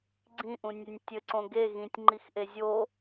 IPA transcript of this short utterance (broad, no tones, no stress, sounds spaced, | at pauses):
ɡ͡ǀ ĩ ʔ ũ nʲ ɛ nʲ tʲ ɘ ǀ õ ɡ e ɣ ĩ tʲ ŋ͡ǃ i x ʔ e zʲ o